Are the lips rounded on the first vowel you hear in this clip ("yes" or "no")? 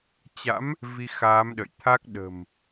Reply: no